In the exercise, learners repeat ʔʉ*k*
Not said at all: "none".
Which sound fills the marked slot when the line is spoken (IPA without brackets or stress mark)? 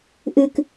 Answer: k